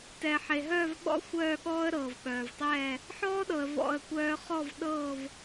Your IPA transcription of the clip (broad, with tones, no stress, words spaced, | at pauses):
tɛ˨ħe˨ɦœː˥˧vɓɔ̰˥˧ xʷœː˥˧ɠɔː˥ə̯ ɾɤ˨vɓœː˨vtˤɛː˥˧ | ħɔː˥ɗɤ˨ə̯ vɔ̰˥˧ə̯kʷœː˥ χɔ˥˧vɗɤː˥˧v